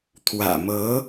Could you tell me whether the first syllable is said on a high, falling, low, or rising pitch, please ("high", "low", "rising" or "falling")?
low